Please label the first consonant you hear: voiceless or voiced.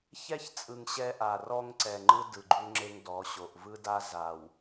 voiceless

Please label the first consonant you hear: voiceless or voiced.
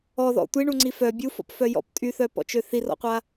voiced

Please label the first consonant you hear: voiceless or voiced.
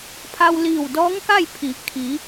voiceless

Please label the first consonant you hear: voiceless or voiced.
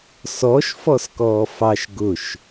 voiceless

